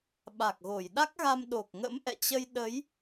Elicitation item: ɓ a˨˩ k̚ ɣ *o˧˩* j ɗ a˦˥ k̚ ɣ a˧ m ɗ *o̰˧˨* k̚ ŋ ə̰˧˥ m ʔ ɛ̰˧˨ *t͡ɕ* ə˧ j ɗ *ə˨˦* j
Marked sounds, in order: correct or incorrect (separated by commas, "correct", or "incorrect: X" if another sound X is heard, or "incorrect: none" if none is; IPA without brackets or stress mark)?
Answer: correct, incorrect: o˨˩, correct, correct